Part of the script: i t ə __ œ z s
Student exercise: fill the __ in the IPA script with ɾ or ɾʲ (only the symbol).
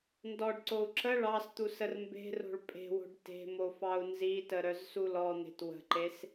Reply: ɾ